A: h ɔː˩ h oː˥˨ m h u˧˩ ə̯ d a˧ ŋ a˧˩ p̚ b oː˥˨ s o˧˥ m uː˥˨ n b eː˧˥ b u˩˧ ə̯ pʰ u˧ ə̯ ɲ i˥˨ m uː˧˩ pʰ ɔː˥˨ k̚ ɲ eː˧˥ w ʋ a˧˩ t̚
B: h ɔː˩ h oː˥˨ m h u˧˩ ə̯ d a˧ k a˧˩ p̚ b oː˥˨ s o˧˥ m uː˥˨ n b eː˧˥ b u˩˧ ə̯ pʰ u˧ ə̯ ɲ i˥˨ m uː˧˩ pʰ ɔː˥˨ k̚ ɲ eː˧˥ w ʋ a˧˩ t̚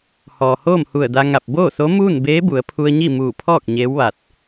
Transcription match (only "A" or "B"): A